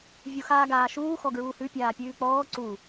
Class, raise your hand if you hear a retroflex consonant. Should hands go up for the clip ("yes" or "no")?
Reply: no